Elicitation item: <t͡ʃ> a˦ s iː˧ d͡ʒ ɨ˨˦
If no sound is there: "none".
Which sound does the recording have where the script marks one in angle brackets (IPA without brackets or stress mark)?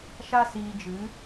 ʃ